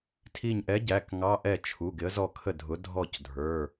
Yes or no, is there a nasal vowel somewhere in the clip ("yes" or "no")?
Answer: no